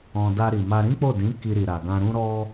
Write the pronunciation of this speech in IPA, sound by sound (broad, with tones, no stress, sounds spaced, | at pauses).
ɔ̃˧ d a˧ ɾ i˨ m a˧ ɾ ĩ˦ k͡p o˦˨ d ĩ˨˦ k i˧ ɾ i˨ ɾ a˨ ɡ ã˧ ɾ ũ˦ ɾ ɔ˦